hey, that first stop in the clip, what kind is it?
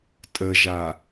ejective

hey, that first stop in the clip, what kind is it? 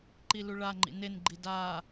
click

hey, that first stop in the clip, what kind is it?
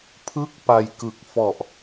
aspirated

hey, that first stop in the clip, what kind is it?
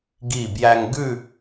plain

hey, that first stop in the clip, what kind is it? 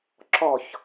click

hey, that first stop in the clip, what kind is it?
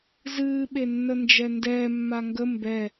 implosive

